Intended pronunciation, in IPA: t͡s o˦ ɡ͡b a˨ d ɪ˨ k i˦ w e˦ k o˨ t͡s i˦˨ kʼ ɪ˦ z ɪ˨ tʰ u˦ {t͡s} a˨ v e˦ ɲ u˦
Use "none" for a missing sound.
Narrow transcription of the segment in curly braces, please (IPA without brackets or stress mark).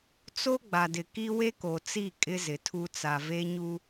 t͡s